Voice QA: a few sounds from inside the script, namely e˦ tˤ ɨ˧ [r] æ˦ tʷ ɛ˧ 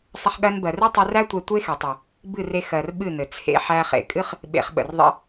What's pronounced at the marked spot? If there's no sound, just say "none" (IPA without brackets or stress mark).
r